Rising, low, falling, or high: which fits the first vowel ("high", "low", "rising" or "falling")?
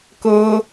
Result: high